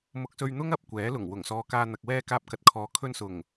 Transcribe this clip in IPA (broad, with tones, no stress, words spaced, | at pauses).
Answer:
mʊ˧k̚sɵ˧ɥn̪ʊ˥ŋ ɐ˨˥p̚kʷɛː˨˥ lʊ˨˩ŋwʊ˨˩ŋsɔː˨ kaː˧n̪ɐ˨k̚ wɛː˧ kaː˧p̚kɐ˨t̚kʰɔː˨ kʰɵ˧nsʊ˨˩ŋ